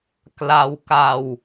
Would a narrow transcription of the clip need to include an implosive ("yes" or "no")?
no